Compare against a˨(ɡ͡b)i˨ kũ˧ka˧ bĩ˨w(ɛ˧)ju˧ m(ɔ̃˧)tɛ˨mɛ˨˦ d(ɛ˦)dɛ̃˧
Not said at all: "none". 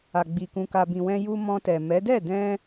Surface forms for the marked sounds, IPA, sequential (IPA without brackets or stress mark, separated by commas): ɡ͡b, ɛ̃˧, ɔ̃˧, ɛ˦˨